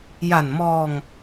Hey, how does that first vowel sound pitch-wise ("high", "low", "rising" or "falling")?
low